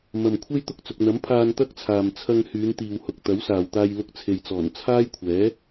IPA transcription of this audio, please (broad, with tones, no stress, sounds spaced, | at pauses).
m ɐ˨ m kʷʰ e˥ j t̪ ʊ˧ k̚ t͡s ʊ˨ k̚ n̪ ɐ˨˥ m pʰ aː˧ n t̪ ɐ˥ k̚ t͡sʰ aː˨ m t͡sʰ ɐ˧ ŋ h yː˨˧ n t̪ iː˨ w h ʊ˨ k̚ t̪ ɐ˨˥ w s aː˨ w t̪ aː˧ j l ʊ˧ k̚ t͡sʰ e˨ j t͡s ɔː˨˩ n t͡sʰ aː˥ j kʷʰ ɛː˨˥